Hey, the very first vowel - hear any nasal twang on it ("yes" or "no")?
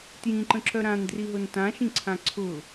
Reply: yes